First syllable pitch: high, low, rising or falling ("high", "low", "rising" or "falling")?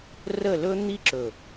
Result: falling